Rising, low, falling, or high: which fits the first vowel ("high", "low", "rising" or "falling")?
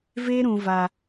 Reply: high